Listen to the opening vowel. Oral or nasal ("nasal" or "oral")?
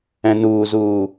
nasal